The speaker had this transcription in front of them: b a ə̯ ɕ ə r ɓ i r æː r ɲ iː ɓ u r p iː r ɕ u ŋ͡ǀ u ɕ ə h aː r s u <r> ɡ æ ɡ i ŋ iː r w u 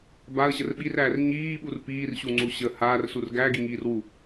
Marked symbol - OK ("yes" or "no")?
yes